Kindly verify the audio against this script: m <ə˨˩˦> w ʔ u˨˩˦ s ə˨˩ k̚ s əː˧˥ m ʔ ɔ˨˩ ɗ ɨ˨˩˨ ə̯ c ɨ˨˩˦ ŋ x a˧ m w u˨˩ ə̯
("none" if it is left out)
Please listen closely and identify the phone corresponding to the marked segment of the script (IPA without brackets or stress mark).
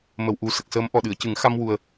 ə˨˩